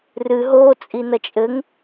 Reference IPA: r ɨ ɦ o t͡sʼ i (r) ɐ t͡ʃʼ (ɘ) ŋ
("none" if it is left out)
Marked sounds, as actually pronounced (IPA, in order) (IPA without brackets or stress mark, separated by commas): n, ɘ